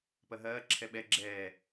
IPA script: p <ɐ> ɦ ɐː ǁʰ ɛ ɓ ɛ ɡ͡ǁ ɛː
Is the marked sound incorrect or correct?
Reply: correct